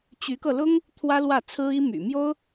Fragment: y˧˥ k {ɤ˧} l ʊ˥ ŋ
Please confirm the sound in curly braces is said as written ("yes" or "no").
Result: yes